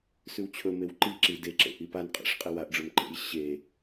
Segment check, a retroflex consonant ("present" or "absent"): present